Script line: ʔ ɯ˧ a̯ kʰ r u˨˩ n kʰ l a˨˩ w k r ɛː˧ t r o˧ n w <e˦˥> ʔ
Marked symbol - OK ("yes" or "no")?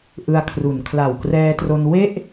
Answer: no